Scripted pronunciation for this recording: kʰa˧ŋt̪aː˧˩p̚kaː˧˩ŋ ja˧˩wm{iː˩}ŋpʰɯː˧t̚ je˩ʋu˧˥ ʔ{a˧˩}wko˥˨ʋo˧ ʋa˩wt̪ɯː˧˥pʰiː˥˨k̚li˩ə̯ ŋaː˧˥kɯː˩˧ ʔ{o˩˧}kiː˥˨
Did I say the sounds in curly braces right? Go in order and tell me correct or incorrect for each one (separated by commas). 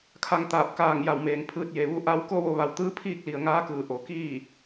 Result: incorrect, incorrect, correct